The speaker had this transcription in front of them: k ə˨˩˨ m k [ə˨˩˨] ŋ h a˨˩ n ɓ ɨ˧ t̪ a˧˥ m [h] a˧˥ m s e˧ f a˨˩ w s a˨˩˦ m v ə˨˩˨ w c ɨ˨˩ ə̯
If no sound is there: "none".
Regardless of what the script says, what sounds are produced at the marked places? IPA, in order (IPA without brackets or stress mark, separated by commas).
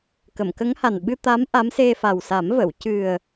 ə˧˥, ʔ